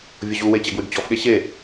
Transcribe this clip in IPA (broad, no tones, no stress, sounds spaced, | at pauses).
vʲ o ʑ u w e t͡ɕ ɛ ɡ w y ɡ t͡ɕ ɔ f ɠ e ɕ e